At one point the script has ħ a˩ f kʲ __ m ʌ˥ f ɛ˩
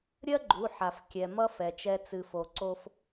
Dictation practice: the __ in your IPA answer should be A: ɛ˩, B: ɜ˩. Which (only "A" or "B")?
A